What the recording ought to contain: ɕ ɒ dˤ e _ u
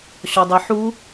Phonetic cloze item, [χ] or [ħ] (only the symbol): ħ